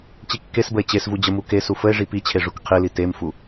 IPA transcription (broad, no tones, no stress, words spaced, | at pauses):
t͡ɕikːesbəe̯ t͡ɕesvu d͡ʑəmukesu fəe̯ʐi pit͡ɕʰe ʐukqʰili temfu